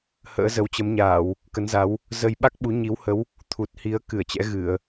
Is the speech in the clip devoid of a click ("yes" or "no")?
yes